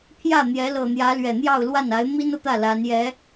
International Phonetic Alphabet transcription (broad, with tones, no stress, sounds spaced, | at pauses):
pʰ j ä˥˩ n̪ j ɛ˧˥ l ɤ˨˩ n̪ j ä˧˥ l ɥ ɛ˨˩ n̪ j ɑ˥˧ ʊ̯ l w a˥˩ n a˧˥ ɪ̯ m i˥ n ɤ˨ t̪ ä˥˩ l a˧˥ n j ɛ˧˥